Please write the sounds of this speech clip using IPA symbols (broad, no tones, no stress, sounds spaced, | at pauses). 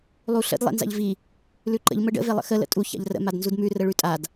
lˠ u ɬ ə̰ d lˠ ḛ n z a̰ ʎ v i | l ʉ ǃ ə̰ ʎ m ə ɖ ə̰ v e lˠ ə̰ x ə l ə̰ tʼ u ç a̰ ʎ r ə̰ m a d n z u d m ʉ r ə ɭ ʉ tʼ a d